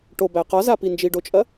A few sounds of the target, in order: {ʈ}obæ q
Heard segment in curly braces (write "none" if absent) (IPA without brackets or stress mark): ʈ